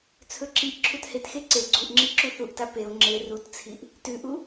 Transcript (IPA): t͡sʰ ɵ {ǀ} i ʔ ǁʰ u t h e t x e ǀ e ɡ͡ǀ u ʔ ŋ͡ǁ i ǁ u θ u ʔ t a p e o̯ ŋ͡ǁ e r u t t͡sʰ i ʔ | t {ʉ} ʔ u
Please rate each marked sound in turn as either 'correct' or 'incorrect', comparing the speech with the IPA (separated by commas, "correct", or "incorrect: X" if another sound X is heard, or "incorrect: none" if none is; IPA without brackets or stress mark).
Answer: incorrect: ǁ, correct